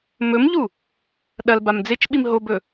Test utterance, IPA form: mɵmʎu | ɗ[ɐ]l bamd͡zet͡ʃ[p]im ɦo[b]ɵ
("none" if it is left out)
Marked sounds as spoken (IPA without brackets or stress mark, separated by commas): ɐ, ɓ, b